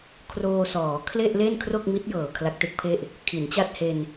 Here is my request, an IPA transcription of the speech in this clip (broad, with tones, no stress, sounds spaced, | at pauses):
kʰ r oː˧ s ɔː˩˦ kʰ l e˥˩ ʔ l e˥˩ n kʰ r o˥˩ k̚ m i˦˥ t̚ j ɤː˨˩ kʰ l a˦˥ k̚ t e˦˥ k̚ pʰ e˥˩ ʔ | kʰ i˩˦ n t͡ɕ a˥˩ t̚ h e˧ n